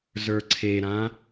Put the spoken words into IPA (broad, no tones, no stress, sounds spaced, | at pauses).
z ə˞ ǀʰ e ɾ ã